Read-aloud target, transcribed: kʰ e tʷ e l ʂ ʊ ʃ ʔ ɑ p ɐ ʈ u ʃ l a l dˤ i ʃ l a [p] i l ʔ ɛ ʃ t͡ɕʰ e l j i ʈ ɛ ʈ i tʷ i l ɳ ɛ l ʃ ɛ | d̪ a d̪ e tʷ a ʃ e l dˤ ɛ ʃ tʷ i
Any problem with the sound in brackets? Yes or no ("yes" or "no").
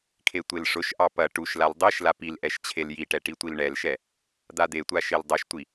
no